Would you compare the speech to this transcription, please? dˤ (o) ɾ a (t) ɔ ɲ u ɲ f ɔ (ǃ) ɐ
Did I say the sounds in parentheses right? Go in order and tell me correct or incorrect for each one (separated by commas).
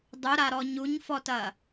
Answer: incorrect, incorrect, incorrect